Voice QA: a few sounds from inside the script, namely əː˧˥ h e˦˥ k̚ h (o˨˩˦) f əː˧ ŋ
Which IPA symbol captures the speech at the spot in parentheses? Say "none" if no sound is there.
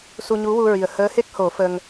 o˨˩˦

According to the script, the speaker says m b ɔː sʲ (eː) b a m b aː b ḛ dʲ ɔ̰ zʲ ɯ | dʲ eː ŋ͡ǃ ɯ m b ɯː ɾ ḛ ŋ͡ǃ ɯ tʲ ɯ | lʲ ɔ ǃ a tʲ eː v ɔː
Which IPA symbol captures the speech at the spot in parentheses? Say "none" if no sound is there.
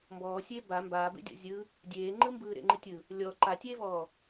eː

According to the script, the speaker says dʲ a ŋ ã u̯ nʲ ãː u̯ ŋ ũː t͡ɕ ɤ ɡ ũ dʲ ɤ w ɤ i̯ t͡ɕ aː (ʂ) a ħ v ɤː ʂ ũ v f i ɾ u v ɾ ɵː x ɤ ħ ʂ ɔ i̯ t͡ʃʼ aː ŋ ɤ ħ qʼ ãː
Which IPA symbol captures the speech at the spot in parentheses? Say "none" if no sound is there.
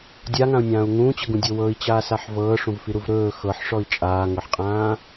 s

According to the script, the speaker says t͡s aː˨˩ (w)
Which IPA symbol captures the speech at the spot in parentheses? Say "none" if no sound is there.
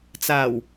w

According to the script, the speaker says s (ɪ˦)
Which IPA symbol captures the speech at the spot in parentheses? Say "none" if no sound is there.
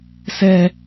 ɛ˦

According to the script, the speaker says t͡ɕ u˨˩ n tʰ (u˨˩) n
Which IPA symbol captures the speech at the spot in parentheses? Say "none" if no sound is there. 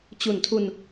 u˧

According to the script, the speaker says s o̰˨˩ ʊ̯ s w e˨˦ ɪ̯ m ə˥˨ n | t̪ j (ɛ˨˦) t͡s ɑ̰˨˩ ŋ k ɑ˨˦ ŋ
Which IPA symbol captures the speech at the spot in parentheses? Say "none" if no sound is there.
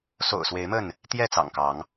ɛ˥˨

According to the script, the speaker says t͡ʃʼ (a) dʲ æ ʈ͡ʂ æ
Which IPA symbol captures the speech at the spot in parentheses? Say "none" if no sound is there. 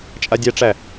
a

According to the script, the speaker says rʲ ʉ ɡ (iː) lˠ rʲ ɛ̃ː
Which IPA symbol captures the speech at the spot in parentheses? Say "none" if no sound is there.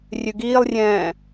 iː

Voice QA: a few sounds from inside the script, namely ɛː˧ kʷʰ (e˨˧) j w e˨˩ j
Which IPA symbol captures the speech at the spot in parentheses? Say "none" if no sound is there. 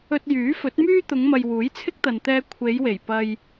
e˨˧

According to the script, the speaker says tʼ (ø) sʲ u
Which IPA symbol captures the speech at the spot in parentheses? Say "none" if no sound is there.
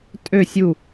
ø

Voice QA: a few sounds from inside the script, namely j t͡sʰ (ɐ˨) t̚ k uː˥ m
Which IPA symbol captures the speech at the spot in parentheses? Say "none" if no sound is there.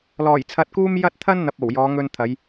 ɐ˧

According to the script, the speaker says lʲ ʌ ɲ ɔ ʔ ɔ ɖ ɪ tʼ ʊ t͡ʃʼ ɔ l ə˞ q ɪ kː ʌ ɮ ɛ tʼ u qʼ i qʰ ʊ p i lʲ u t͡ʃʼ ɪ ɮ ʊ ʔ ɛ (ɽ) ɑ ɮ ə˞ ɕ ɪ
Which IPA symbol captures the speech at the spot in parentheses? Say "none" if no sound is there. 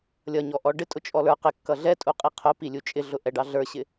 ɖ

